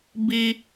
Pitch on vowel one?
high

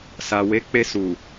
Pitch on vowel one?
low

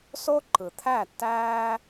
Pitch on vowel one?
high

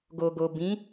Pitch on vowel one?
low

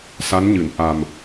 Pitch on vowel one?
rising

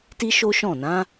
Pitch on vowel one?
high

